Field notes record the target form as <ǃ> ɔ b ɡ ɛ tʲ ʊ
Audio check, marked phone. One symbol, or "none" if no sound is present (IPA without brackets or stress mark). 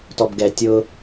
t